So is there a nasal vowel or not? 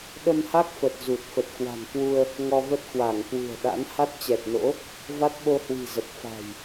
no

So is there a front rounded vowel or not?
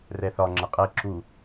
no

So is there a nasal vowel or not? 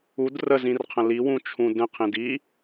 yes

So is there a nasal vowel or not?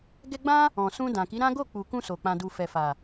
yes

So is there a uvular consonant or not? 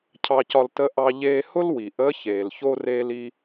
no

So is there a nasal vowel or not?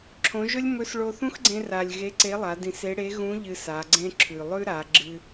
yes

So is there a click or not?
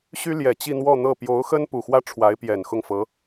no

